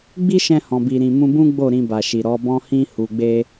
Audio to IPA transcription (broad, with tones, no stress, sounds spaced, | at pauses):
ɡ͡b i˦ ʃ ɛ̃˧ h ɔ̃˨ b i˨ ɾ ĩ˨ m ũ˧ b ũ˦ ɡ͡b o˦˨ ɾ ĩ˧ b a˨ ʃ i˨ ɾ ɔ˨˦ b ɔ̃˦ h ĩ˦ h u˧ ɡ͡b e˦